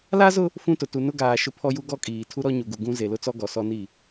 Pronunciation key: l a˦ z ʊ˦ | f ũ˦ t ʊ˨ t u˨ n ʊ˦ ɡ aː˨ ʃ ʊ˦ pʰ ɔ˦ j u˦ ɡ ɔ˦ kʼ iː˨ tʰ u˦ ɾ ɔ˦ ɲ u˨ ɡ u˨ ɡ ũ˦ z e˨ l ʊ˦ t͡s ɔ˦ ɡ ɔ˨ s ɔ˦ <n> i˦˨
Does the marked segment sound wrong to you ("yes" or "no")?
no